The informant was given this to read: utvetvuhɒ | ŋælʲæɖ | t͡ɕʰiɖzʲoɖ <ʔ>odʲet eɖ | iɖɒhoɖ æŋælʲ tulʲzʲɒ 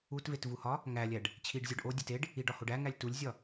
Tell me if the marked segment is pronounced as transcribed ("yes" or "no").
yes